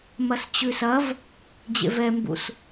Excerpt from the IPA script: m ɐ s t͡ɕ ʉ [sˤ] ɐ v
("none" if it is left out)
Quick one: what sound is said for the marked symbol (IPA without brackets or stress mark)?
s